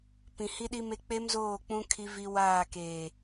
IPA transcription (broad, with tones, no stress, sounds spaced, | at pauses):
p ĩ˨ h i˦ ɗ i˦ m e˦ k͡p e˦ m z oː˦˨ k͡p ũ˦ kʰ i˦ v i˦ w aː˦˨ k e˨